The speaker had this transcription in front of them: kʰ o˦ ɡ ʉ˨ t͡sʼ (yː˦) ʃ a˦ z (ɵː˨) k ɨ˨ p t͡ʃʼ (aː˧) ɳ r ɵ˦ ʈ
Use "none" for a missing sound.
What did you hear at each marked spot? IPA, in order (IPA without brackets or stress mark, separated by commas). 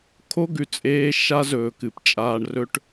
eː˦, ɵː˨, aː˧